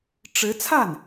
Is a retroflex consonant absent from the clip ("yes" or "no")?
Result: no